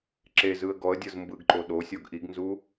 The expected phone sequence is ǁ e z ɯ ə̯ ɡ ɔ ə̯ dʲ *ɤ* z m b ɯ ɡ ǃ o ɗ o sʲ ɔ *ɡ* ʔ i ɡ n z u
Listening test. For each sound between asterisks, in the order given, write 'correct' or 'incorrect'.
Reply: correct, correct

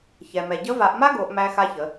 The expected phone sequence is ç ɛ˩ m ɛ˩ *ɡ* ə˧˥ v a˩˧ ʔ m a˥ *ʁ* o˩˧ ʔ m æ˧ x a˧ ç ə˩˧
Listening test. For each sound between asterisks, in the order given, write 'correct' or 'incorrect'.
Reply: incorrect, incorrect

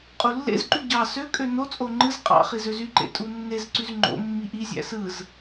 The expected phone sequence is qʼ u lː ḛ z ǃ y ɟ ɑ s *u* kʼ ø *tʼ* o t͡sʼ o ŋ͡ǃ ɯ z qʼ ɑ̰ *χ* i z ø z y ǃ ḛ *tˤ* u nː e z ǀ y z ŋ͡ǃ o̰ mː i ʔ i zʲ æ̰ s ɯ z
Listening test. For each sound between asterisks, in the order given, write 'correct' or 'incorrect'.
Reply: incorrect, incorrect, correct, incorrect

